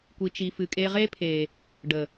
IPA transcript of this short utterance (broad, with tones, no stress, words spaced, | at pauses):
kʷi˨t͡ʃi˨fɨ˨kʼe˧ ʁe˦pʰe˨ | ɖə˨